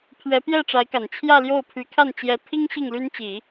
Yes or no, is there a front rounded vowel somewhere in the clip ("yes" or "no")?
yes